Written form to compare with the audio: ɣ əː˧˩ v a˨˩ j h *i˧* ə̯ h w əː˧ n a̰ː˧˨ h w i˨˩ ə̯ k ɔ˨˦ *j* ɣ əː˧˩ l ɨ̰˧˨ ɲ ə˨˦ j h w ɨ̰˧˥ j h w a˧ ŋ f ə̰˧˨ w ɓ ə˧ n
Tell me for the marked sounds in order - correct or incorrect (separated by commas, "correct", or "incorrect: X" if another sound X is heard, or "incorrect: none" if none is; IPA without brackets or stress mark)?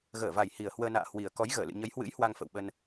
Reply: incorrect: i˨˩, correct